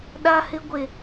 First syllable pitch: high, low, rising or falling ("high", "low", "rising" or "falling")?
high